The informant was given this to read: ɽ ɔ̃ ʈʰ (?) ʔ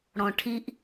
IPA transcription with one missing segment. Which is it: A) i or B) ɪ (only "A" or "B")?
A